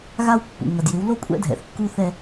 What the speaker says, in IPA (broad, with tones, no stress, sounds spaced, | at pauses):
ɣ a˦ w pː ṵ˨ ŋ ɐ˨ d j ɪ˨˦ w l o˦ kʷʼ ɛ̰˦ dʱ ɛ̰˨ θ kː u˦ θ ɛ˦